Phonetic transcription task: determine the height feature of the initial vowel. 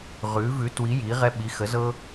high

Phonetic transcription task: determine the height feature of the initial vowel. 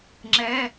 mid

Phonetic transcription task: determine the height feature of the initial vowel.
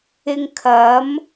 high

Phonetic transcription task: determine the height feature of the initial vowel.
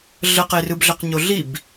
mid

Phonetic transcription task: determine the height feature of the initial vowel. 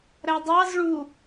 low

